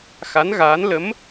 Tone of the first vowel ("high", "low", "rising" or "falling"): rising